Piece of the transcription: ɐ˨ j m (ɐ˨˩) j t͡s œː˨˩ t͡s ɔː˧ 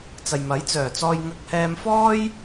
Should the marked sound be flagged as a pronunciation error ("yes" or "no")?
yes